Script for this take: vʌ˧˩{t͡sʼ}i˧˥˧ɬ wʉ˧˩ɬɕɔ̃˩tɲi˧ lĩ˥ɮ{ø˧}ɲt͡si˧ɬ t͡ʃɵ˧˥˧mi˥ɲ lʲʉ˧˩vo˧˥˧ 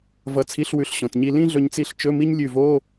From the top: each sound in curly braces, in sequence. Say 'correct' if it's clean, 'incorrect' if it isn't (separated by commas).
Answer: incorrect, incorrect